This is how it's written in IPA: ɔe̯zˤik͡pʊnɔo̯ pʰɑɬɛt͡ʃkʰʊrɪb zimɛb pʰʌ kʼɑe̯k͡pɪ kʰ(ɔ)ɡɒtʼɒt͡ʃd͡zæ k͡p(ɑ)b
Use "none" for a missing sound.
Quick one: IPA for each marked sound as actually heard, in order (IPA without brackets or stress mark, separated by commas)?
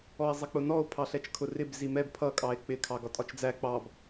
ɑ, ɑ